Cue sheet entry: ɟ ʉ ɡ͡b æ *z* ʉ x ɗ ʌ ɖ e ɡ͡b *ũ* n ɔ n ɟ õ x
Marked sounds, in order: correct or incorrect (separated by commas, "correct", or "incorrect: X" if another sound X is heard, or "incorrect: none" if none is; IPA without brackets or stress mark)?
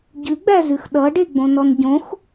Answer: correct, incorrect: õ